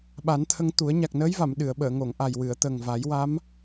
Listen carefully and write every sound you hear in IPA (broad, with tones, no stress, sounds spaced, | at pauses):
ɓ a˨˩˦ n t̪ʰ ə˧ ŋ t̪ u˨˩˦ ə̯ ɲ a˨˩ k̚ n əː˧˥ j v a˨˩˨ m ɗ ɨ˨˩˨ ə̯ ɓ əː˨˩˨ ŋ o˨˩˨ ŋ ʔ a˨˩ j w ɨ˨˩˨ ə̯ t̪ ə˨˩ ŋ v a˨˩˦ j w a˧˥ m